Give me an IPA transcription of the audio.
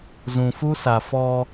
z ũ˨ f u˦ s a˨ f ɔ˦

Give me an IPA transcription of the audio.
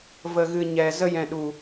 v ə˨ ɣ ɨ˨ ɲ ɛ˨ z ə˧ j ɛ̃˨ ɗ u˨

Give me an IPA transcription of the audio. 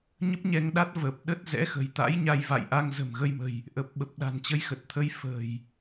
ɲ ə˦˥ p̚ ɲ ɛ˧ ŋ ɗ a˦˥ t̚ v ə˨˩ p̚ ɗ ə˦˥ t̚ z ɛ̰˧˥ x ə̤˨˩ j t̪ a̰˧˥ j ɲ a˧ j v a̰˧˨ j ʔ a˧ ŋ z ə̤˨˩ m ɣ ə˧ j m ə̤˨˩ j | ʔ ə˨˩ p̚ ɓ ə˨˩ p̚ ɗ a̤˨˩ n t͡ɕ ə˧ j x ə˨˩ t̚ t̪ʰ ə˧ j f ə̤˨˩ j

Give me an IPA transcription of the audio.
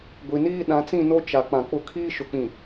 ɡʷ i˨ n iː˦ ɗ ã˨˦ t͡s ĩ˦˨ n o˦ t͡ʃ a˨ k͡p ã˨ k͡p ʊ˦ kʰ iː˦ ʃ ʊ˨ k͡p ĩ˨

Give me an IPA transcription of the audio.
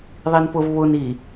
ðˤ i n p ʊ v β ʊ n i

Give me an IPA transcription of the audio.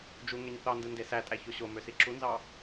d͡ʒ u ŋ e ɲ θ ɑ n d ɯ n d e s æ tʼ æ ç o ɕ o m ø s i ǁ u n z ɑ

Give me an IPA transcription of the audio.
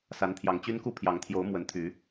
s a˨˦ n t̪ʰ j ɑ˨˩ ŋ t͡ɕ y˦ n k u˥˨ pʰ j ɑ˨˦ ŋ t̪ʰ j o˨˦ ʊ̯ m w ə˨˦ n t̪ʰ y˨˦

